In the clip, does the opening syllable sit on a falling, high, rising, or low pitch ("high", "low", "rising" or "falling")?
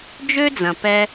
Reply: high